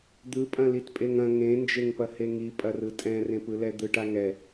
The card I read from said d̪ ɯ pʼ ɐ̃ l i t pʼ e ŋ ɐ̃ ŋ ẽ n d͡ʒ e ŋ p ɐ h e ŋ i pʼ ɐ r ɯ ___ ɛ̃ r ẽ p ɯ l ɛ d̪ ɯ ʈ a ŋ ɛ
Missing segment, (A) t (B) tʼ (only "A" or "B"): B